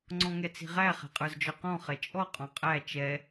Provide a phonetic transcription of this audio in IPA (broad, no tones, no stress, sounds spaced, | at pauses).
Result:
ŋ͡ǀ ɔ̃ ŋ ɛ t͡s i̤ ʁ æ χ ɛ̤ qʼ ə˞ z d͡ʒ ɔ q ɔ̃ χ ɛ t͡ʃʼ ɔ qʼ ɔ̃ qʼ æ t͡ʃ ɛ